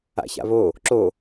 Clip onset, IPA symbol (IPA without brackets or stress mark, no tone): a̰